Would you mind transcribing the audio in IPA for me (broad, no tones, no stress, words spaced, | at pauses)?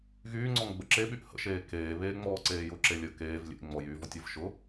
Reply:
ɣyː ŋ͡ǀɔŋɡ͡bəǁeɓyʔ hə̰ʃeː keː βeːŋ͡mɔːǀeːjʊ ǁelʲə keːv lʲḛŋ͡mɔ jyːvɔtʲəv ʃʊ